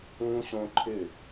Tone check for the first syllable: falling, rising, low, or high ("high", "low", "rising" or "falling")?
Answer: high